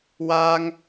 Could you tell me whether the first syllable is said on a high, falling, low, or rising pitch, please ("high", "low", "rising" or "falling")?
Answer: high